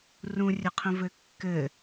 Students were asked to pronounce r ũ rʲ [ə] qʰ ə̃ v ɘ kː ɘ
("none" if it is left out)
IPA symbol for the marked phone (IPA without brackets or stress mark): ə